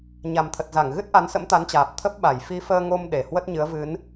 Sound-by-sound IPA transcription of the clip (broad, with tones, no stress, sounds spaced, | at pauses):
ɲ a˨˩ m t̪ʰ ə˨˩ t̚ z a˧˩ ŋ ɣ ɨ˦˥ t̚ ʔ a˨˦ n s ə̰˧˥ m t̪ a˨˦ n t͡ɕ aː˨˩ p̚ t̪ʰ ə˦˥ p̚ ɓ a˧˩ j f i˨˦ f əː˧ ŋ o˧ m ɗ e˨˩ h w ə˦˥ t̚ ɲ ɨ˨˦ ə̯ v ɨ˨˦ n